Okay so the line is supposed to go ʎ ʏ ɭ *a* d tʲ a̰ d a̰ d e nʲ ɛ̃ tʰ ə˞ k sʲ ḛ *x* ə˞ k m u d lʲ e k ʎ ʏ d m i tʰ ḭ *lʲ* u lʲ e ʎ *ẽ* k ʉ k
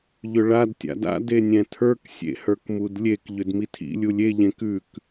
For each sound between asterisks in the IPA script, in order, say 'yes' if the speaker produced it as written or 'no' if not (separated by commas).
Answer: yes, no, yes, yes